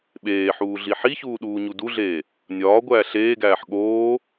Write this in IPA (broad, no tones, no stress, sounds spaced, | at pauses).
ɓ eː ħ uː ɮ i ħ i ç uː ɗ uː ɲ u d u ɮ eː | nʲ ɒː ɡʷ æː ɬ eː ɡ æː ħ ɠ oː